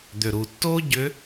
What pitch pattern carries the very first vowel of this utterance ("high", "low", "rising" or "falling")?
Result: low